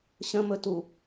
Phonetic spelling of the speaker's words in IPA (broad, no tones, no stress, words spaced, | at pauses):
ɕə̃mɵtu